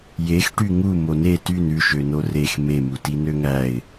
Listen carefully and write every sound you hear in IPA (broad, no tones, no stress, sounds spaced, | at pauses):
j e x ʈ y ŋ u m o n e t y n ʉ ʃ ø n o r e x m e m u t i n ø ŋ æ ɪ̯